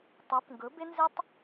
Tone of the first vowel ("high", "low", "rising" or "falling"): rising